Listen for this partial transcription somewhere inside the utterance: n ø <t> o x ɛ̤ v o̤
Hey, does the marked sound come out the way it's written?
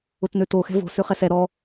yes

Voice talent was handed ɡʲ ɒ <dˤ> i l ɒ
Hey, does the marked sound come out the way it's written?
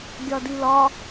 no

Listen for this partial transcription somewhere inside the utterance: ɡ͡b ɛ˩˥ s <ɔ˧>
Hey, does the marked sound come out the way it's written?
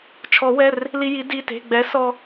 yes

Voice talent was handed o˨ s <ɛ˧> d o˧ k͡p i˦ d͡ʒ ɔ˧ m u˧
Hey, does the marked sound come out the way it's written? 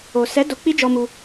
no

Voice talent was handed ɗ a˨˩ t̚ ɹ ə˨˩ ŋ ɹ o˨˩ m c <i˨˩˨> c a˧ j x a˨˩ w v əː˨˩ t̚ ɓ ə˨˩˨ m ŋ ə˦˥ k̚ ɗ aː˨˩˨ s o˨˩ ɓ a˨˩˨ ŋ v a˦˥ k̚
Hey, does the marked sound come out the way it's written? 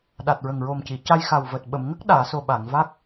yes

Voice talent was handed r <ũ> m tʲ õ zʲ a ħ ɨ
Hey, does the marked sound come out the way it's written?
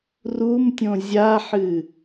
no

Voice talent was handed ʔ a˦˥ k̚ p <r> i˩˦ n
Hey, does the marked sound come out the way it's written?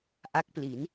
no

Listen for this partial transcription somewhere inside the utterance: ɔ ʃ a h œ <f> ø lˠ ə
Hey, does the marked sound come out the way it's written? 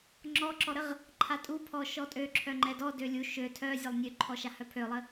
no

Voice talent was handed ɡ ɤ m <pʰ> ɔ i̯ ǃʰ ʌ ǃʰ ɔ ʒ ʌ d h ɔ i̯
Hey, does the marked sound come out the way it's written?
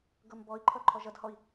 no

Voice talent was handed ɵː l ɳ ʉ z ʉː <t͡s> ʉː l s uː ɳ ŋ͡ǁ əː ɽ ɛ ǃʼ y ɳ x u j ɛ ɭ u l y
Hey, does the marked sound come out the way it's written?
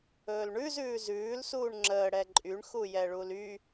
no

